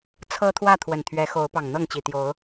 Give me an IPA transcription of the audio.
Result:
t͡sʰ ɤ˦ t̪ʰ w ä˥˨ t̪ʰ w ə˨˩ n t̪ʰ ɥ ɛ˨˦ x o˨˦ ʊ̯ p ɑ˨˩ ŋ n̪ ɤ˥˨ ŋ t͡ɕ i˨˩ t̪ j o˨˦ ʊ̯

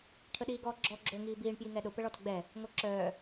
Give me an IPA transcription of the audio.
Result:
ʈʰ ə ɗ iː ɡ ɔː ɡ͡ǁ ɔ ɡ͡ǁ o ŋ iː b iː ɳ p j i ŋ ɛ ɗ ʊ p ə ɭ ɔ t ə ɡ͡b ɛ | ŋ o ǁ œː

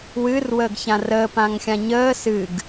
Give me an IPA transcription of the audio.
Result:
w ɨ r w əː ɡ ç ã r əː p ã ŋ xʲ ã ɲ əː s ɨ ɡ

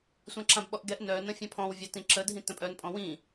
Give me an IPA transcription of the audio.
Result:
sʷ ã ǁ ã b ɓ ɔ ʔ ɡ ɛ ʔ n œ n ə̃ fʲ ã pʰ ɔ̃ w vʲ a t ĩ ǁ ə dʱ ĩ t ə̃ pʼ œ n pʼ ɔ̃ w ĩ

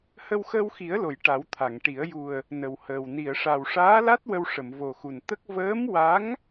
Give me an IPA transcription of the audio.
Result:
h ə˧ w x əː˧ w x i˨˩˦ ə̯ l o˨˩˨ j ʈ a˨˩˦ w t̪ʰ a˨˩˨ ŋ ʈ i˨˩˦ ə̯ j u˨˩ ə̯ | n ə˨˩ w h əː˨˩ w n i˨˩˨ ə̯ ʂ a˨˩ w ʂ aː˧˥ l a˦˥ t̚ w ə˧ w ʂ ə˨˩˨ m v o˨˩ x u˨˩ n t̪ ə˦˥ k̚ v əː˧˥ m w a˧˥ ŋ

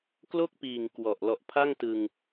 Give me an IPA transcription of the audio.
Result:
k l o˥˩ k̚ p iː˨˩ ŋ k w ɔ˨˩ ʔ l ɔ˨˩ ʔ pʰ a˥˩ ŋ t ɯ˧ ŋ

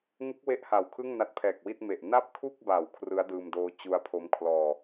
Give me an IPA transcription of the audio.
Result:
ŋ u˦˥ k̚ w e˦˥ ʔ h a˨˩ w kʰ ɯ˥˩ ŋ n a˦˥ t̚ pʰ ɛː˨˩ k̚ w i˥˩ t̚ m e˨˩ ʔ n a˥˩ p̚ kʰ u˥˩ k̚ b a˨˩ w kʰ r ɯ˦˥ a̯ d ɯː˧ m d oː˦˥ t͡ɕ u˦˥ a̯ pʰ o˦˥ m kʰ l ɔː˧

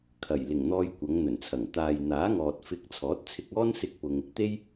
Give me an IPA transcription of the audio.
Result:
kʰ ɐ˨˩ j l ɪ˨˩ ŋ n̪ ɔː˧ j kʷ ɐ˨˧ ŋ n̪ ɵ˨˩ n t͡sʰ ɐ˨˩ ŋ t̪ aː˨ j n̪ aː˨˥ ŋ ɔː˨ t̚ f ɪ˧ k̚ t͡sʰ ɔː˨˥ t̚ t͡sʰ ɪ˧ k̚ ɔː˥ n s ɪ˥ k̚ p ʊ˧ ŋ | t̪ e˥ j

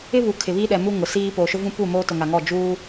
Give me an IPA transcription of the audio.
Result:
ɪ˦ β u˨ kʰ ɪ˨ β i˦ ɗ ɛ˨ m u˦ ŋ ʊ˨ s iː˦ p oː˨ ʃ ʊ˦ v ũ˦ p u˦˨ m oː˦ t ʊ˨ ŋ a˨ ŋ ɔ˦˨ d͡ʒ uː˦

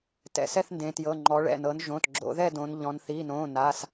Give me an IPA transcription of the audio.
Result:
t ɛ̰˩˧ s ɛ˥˧ θ n d ẽ˩˧ t j ɤ˩˧˩ ŋ͡ǃ ɔ˩˧ ɭ ɛ̰˩˧˩ n ɤ˩˧ n ʒ õː˩˧˩ t ɡ͡ǁ o̰˩˧ ð ɛ˥˧ d õ˩˧ n ʎ ɔ̃˩˧ n θ i˩˧˩ n õː˩˧˩ n a˩˧˩ s

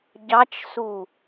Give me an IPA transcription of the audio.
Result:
ɟ ɑ t͡ʃ s u

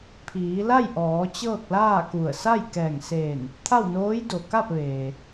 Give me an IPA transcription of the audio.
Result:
pʰ iː˩˧ l a˥˨ j ʔ ɔː˩˧ t͡ɕ ɤː˥˨ k̚ l aː˥˨ k u˧˩ ə̯ s a˥˨ j k ɛː˧˩ ŋ s eː˧˩ n | t̪ʰ a˥˨ w n oː˧˥ j d o˩ k a˥˨ p̚ ʋ eː˩

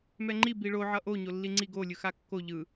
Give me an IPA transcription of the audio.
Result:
m ɛ ŋ͡ǃ i b i ɭ o ʕ ʌ ʔ o ɲ o lː i ŋ͡ǀ i ɡ o lʲ ɯ x a kː o ʎ ɯ

